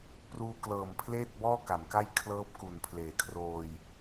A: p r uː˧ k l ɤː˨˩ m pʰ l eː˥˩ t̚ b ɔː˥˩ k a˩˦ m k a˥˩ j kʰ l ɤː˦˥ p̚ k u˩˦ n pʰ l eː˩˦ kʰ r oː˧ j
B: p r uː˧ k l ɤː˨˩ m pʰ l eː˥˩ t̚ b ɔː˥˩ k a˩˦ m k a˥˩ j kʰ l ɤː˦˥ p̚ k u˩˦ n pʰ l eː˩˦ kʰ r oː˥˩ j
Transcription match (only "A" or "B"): A